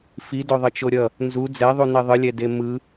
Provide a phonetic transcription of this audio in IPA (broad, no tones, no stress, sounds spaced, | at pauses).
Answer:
f i d o ðˤ ʌ t͡ʃ o ɾʲ ʌ | n z u d͡z ɛ ðˤ u n e ðˤ ɯ lʲ ɛ d e m ɯ